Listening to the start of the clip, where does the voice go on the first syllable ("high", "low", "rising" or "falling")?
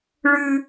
high